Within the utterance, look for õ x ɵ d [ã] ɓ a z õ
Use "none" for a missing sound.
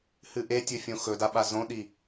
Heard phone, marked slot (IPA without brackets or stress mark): a